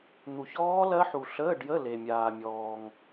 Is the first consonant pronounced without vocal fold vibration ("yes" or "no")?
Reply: no